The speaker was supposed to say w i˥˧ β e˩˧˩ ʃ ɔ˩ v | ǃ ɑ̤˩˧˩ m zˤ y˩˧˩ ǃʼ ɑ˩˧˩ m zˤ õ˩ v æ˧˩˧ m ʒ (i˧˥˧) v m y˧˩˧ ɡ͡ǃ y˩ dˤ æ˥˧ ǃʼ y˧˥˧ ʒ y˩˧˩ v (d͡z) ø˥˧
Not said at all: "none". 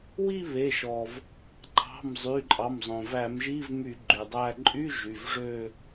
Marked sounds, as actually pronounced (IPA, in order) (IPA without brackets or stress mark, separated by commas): i˧˥˧, ʐ